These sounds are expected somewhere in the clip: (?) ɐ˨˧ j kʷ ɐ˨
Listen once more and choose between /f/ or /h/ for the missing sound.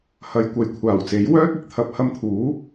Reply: h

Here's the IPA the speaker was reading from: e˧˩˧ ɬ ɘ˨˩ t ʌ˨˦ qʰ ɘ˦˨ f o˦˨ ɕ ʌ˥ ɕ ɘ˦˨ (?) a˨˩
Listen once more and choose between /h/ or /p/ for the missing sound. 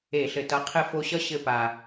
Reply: p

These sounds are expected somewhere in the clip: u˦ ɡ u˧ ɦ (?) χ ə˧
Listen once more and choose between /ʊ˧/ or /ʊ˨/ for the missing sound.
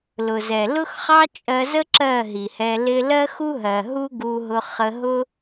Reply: ʊ˧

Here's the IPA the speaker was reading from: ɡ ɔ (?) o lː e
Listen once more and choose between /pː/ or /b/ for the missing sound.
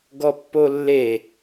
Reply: pː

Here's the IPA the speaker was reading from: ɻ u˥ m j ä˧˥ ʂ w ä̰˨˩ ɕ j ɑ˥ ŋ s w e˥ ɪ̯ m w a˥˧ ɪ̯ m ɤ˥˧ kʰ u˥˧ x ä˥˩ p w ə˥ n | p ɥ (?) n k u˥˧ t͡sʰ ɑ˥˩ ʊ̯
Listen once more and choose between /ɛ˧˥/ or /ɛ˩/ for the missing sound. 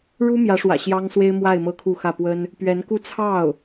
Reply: ɛ˧˥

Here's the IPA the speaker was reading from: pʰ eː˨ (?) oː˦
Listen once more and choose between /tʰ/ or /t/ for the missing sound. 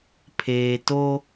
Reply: t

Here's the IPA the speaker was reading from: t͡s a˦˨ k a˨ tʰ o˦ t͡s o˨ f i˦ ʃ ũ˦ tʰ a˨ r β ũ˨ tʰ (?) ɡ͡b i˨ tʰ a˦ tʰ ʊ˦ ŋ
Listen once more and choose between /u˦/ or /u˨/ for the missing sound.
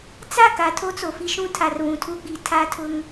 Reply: u˦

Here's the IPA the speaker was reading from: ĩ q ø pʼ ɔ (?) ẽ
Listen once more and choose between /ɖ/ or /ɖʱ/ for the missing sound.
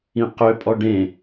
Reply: ɖ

